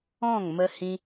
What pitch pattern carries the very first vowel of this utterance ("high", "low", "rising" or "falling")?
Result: falling